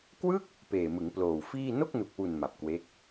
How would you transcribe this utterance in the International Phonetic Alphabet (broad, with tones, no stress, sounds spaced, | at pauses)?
k w ɯ˥˩ k̚ | p eː˨˩ m ɯ˩˦ ŋ p l oː˨˩ w f iː˥˩ n o˥˩ k̚ n u˨˩ k̚ w u˨˩ n m a˨˩ p̚ k w e˦˥ k̚